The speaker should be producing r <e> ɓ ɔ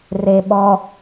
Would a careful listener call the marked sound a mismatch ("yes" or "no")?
no